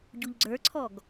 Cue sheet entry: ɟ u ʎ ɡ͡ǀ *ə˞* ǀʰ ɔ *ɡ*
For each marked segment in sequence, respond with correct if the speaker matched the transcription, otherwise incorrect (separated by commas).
correct, correct